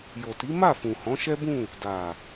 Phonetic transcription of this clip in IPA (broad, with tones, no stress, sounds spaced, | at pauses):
j o˨ t i˨˦ m a˦˨ f ũ˨ h ɔ̃˨˦ ʃ ɛ˦ b ũ˦˨ | d a˨